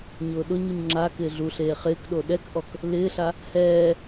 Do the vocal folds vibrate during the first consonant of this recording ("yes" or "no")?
yes